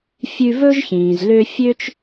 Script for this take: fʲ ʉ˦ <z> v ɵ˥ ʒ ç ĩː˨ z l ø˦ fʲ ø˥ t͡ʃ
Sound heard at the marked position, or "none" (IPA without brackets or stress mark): none